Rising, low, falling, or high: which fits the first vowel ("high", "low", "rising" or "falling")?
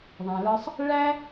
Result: low